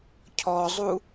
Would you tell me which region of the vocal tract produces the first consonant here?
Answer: palate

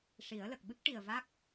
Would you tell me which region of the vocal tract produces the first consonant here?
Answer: retroflex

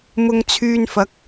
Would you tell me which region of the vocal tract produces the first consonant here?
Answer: lips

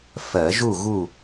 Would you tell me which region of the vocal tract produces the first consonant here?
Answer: lips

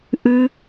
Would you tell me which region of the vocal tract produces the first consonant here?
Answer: throat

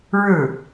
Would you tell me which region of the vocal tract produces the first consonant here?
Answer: retroflex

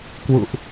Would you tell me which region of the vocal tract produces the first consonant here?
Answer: velum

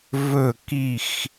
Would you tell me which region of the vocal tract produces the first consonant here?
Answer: lips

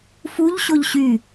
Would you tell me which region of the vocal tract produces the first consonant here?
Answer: lips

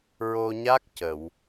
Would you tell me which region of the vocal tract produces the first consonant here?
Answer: tongue tip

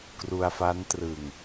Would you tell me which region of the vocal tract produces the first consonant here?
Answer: velum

